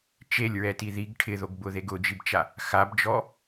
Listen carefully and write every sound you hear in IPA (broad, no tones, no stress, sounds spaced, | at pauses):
t͡ʃ e lʲ ɹ ɛ t i ð i ɡ ʈʰ ɪ ð o ɡ b ʊ ð e ɡ ʊ d͡ʒ i b t͡ʃ a | x a b d͡ʒ ɔ